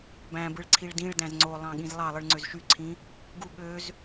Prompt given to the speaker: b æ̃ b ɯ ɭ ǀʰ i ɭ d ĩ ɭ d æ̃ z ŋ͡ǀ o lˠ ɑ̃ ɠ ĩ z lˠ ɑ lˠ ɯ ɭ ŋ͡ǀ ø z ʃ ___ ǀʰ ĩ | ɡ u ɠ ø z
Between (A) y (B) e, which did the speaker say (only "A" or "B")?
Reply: A